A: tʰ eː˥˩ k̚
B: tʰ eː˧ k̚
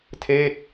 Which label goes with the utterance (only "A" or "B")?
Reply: A